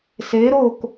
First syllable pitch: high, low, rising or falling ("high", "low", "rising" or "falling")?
rising